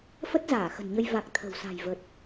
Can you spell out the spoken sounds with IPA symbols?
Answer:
f ə˦˥ t̚ z aː˧˩ x ə̤˨˩ n ɲ ə˧ j v a˨˩ k̚ t̪ʰ ə̤˨˩ w s a̤˨˩ j v ə˨˩ t̚

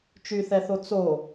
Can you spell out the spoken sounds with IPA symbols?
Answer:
t͡ʃ y θ ɛ θ o t͡s o

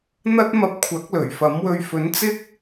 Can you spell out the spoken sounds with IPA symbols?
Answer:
n̪ ɐ˥ t̚ m ɐ˧ p̚ kʷʰ ɐ˨˥ k̚ l ɵ˨˩ ɥ f ɐ˨˥ m w ɵ˧ ɥ f ɵ˨˥ n t͡s ɪ˥ k̚

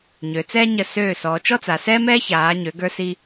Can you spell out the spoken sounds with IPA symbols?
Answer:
ɲ ø˩˧ t͡s ɛː˥ ɲ ə˧˩ s øː˧˩ s ɔː˩˧ t͡ʃ ɔ˥ t͡s a˩˧ s ɛː˥ m ɛː˥ ç aː˩˧ ɲ ø˩˧ ɡ ə˞˧ s i˧

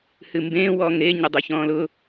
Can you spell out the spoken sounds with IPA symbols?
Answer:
h ɨ m b ẽː w ɔː ŋ ɾ e ɲ ə dˤ ʉ ç ɔ̃ː l ʊ

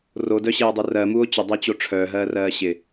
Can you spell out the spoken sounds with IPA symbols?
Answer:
r o d œ ɕ eː dˤ u r ɜ m u o̯ t͡ɕ ə dˤ ɛ t͡ɕ o ʈ͡ʂʰ œː ɦ ɜː r ɜː ɕ ɪ

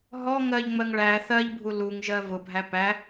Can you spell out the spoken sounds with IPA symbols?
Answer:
ɦ ɔ ŋ ɜ ʎ ŋ͡m ɜ ŋ ɭ æ θ ɜ ʎ bʱ u l u ŋ ʒ ɜ v ʊ bʱ æ p æ

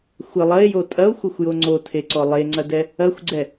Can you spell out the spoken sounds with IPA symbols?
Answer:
xʷ ɘ lˠ ɐ e̯ j o tʼ ɐ o̯ xʷ ɐ xʷ j o ŋ͡ǀ o tʰ e ǀ ɔ lˠ e ŋ͡ǀ ɐ d ɛ | ɐ xʷ ɡ͡ǀ ɛ

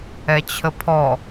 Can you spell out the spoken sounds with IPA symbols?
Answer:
ɛ t͡ɕʰ ə pʰ ɔ

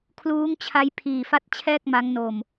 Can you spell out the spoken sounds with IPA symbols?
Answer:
kʰ l uː˦˥ ŋ t͡ɕʰ a˦˥ j pʰ iː˨˩ f a˥˩ t̚ t͡ɕʰ ɛː˥˩ k̚ m a˦˥ ŋ n o˧ m

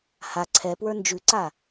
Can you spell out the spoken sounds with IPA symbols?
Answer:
h a ǀʰ ɛ p w ə˞ n d͡ʒ ʉ ǀ a

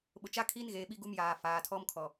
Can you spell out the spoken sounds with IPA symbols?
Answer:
ɓ ʊ˨ t͡ʃ a˦ kʰ iː˦ n ɣ eː˨ ɓ i˦ ɡ u˦ m j aː˨ f aː˨ tʰ ɔ˦ m kʰ ɔ˨

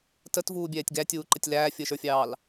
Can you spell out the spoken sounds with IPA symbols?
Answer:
t ə t v uː bʲ ɛː tʲ ɡ æ tʲ uː ǃ ə tʲ l æː fʲ əː ʃ ə˞ fʲ ɑː l

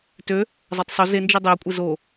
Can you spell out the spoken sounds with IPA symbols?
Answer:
t ø | zˤ a tˤ sˤ y z e n d͡ʒ i dˤ i ɐ̯ kʷʼ e z o

